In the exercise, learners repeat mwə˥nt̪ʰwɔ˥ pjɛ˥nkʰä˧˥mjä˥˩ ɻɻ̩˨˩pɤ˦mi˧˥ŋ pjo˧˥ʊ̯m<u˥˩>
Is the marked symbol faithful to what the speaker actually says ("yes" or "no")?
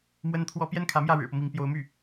no